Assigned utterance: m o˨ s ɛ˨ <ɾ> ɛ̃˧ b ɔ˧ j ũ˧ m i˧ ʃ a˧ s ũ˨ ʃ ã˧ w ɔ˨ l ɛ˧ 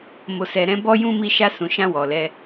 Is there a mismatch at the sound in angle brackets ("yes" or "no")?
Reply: no